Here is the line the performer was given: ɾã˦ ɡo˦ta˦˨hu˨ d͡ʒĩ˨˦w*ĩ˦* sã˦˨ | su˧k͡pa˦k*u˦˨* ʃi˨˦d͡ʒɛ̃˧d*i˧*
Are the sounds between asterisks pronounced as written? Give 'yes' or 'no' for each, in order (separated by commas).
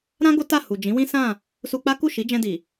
yes, yes, no